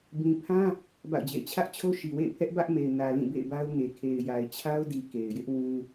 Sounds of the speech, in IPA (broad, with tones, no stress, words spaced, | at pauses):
bĩ˨pʰã˦ | ba̰˦˨ʊ̯d͡ʑḛ˦˨ɪ̯ t͡ɕʰä˦ʔt͡ɕʰo˦ ʃi˨wḛ˦˨ɪ̯pʰɛ˦ʔ bä˦ʔme˨ɪ̯ nä˨ lĩ˦˨bḛ˦˨ɪ̯ba˦ʊ̯ŋe˨ kʰe˨ɪ̯ja˨ɪ̯t͡ɕʰa˦ʊ̯di˨ ke˨ɪ̯jɪ˦ʔ wũ˦